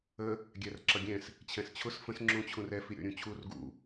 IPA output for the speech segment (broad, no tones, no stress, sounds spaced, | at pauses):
ə | ɡʲ æ r ǁ ʌ ɡʲ ɛ̃ s | t͡ɕʰ ɛ̃ s t͡ɕʰ ʊ s f ə̃ s ŋ͡ǁ ũ t͡ɕʰ ũ r ɛ f i ɾʲ ɔ̰ ɾʲ ũ t͡ɕʰ u r ɡ ṵ